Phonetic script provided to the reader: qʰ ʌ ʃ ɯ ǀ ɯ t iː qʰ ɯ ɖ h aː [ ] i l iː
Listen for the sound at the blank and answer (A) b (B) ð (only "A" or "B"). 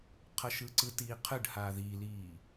B